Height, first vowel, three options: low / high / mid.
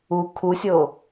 high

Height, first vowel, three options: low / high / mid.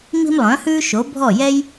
high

